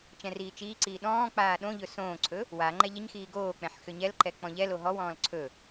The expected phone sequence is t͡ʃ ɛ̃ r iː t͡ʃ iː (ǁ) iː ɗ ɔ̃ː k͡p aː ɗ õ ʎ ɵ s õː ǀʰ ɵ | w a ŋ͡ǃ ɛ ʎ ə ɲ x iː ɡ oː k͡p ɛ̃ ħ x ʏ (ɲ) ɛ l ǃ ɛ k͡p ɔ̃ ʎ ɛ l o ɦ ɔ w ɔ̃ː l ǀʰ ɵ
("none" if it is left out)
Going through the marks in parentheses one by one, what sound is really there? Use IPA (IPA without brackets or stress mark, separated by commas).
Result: ǀ, ɲ